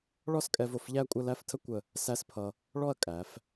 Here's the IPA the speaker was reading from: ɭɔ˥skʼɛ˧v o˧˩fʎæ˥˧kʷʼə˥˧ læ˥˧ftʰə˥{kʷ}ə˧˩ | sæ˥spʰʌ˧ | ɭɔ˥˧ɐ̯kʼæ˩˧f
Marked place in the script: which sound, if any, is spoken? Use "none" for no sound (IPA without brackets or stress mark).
kʷ